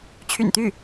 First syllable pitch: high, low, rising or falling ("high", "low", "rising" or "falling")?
low